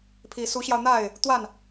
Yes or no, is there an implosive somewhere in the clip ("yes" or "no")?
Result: no